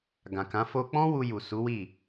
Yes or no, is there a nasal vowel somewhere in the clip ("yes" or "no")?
yes